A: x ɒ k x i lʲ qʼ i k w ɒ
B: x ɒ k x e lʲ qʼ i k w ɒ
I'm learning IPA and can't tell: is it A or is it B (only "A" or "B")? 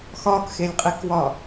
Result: B